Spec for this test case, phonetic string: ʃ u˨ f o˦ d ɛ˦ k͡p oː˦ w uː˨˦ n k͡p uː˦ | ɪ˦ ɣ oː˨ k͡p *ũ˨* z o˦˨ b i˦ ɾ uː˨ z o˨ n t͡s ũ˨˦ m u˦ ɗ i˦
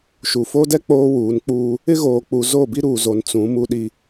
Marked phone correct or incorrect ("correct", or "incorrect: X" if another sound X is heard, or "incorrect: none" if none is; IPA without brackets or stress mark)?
incorrect: u˨